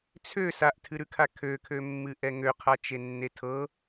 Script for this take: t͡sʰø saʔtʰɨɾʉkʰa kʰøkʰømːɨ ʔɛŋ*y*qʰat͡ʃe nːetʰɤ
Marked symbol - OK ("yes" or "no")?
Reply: no